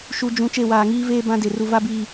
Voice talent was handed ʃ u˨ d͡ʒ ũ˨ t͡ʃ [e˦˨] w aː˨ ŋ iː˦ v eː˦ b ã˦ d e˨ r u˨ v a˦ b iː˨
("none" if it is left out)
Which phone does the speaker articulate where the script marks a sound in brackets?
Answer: e˦˨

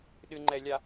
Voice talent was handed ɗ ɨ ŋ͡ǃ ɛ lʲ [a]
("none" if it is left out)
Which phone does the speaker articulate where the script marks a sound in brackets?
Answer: a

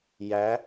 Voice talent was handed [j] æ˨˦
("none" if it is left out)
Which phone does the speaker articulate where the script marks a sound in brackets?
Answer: j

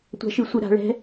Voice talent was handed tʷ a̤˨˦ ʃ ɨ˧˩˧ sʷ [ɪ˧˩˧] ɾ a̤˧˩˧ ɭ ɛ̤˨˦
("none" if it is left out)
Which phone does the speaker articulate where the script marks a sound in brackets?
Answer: ɨ˧˩˧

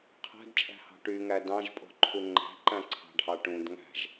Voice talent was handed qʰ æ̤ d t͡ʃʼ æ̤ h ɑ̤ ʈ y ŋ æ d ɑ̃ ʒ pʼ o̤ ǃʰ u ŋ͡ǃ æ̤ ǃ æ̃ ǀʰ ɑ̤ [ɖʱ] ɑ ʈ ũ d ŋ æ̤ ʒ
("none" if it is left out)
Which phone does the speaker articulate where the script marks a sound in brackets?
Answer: ɖʱ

